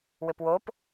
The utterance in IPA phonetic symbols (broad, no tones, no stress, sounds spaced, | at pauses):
w ɘ p w o p